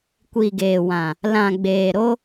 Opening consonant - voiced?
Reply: no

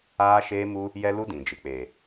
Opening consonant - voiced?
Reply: no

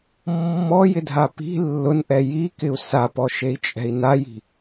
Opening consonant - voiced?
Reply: yes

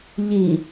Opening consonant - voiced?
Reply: yes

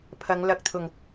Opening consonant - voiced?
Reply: no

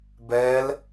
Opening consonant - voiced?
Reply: yes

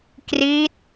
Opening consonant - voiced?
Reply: no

